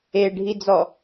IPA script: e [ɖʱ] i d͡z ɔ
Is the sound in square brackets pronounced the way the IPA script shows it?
yes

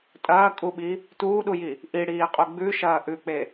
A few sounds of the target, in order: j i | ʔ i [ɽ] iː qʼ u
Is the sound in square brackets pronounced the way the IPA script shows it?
yes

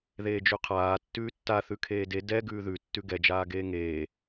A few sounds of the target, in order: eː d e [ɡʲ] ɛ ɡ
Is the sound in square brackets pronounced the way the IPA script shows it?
no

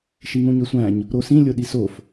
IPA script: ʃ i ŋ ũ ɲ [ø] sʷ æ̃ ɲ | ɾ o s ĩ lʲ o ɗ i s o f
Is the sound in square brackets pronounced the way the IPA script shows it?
yes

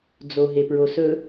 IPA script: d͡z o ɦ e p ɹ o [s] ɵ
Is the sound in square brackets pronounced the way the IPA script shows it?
yes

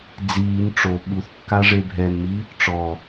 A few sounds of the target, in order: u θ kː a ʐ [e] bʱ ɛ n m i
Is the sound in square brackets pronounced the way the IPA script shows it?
yes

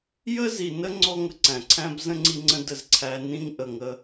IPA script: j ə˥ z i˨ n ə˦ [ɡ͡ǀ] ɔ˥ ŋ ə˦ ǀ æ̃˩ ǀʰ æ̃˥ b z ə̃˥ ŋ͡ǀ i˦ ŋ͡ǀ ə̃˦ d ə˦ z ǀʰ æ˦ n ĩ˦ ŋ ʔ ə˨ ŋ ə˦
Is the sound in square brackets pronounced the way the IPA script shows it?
no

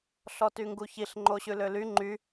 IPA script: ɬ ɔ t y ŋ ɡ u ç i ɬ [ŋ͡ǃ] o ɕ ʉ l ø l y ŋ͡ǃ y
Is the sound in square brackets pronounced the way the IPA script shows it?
yes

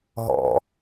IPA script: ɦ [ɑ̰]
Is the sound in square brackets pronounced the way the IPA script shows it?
no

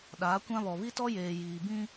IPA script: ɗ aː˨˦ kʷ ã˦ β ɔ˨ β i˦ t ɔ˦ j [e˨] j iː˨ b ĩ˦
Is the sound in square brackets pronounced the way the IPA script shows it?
no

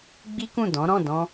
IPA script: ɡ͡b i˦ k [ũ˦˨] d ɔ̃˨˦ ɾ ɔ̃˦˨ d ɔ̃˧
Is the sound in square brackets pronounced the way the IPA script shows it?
yes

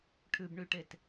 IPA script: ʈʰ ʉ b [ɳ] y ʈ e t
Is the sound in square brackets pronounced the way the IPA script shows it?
yes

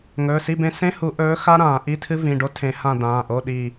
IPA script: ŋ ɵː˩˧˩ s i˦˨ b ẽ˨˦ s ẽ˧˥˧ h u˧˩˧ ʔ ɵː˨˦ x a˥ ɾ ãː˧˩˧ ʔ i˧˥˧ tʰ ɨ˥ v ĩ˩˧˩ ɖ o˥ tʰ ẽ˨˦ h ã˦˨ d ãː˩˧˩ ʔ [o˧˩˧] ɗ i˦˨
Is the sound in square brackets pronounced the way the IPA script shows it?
no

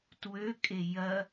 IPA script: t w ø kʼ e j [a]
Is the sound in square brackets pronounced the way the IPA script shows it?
no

